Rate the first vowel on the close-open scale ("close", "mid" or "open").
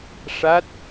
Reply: open